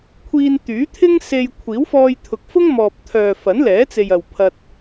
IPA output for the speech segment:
kʷʰ iː˧ n t̪ yː˨˥ t̪ʰ ɪ˥ ŋ s e˧ j kʷʰ iː˨˥ w f ɔː˧ j t̪ʰ ʊ˨ k̚ f ʊ˥ ŋ m ɔː˨ p̚ t̪ʰ œː˨ f ɐ˨˥ n l ɛː˨˥ t͡s e˨ j ɐ˨ w pʰ ɐ˧ t̚

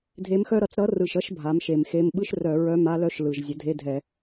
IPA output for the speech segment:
dʱ e˧˥ m x œ˥ ɾ ʌ˧˩˧ t͡s ɾ ʌ˧˥ r ɯ˨˩ ʃ ʌ˧˥˧ ʃ bʱ a˩˥ m ʃ e˨˩ m x e˧˥˧ m ɓ ɯ˥ ʃ r œ˧˩˧ ɹ œ˧˥˧ m a˥ l œ˥ ʃ l ɯ˨˩ ʒ zʲ ə˩˥ dʱ e˧˥˧ dʱ ɛ˧˩˧

